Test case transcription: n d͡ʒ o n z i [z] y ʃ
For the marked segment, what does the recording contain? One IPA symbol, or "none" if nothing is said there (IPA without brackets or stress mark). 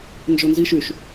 ʃ